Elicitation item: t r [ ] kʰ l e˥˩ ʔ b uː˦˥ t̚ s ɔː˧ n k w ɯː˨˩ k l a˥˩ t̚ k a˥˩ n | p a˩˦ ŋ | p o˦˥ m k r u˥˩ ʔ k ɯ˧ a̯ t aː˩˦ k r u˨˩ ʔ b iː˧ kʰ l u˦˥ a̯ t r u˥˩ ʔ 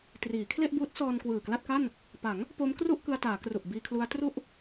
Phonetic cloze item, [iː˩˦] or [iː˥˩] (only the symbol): iː˩˦